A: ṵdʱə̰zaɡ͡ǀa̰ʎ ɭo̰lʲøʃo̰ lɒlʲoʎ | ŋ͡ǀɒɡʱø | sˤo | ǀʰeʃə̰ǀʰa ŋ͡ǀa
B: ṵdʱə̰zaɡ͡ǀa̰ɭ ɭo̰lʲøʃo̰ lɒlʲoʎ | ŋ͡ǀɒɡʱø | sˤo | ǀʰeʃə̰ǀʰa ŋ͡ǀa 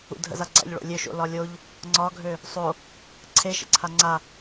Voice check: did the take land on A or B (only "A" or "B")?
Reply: A